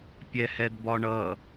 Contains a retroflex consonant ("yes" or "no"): yes